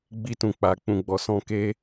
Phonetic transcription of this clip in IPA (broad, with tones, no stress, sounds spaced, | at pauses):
ɡ͡b i˧ t ũ˨ k͡p a˨ k͡p ũ˨ ɡ͡b ɔ˨ s ɔ̃˧ k e˦